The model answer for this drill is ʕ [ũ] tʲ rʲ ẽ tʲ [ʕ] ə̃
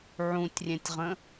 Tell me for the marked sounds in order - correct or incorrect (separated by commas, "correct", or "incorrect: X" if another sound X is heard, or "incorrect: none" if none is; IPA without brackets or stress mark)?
correct, incorrect: ʁ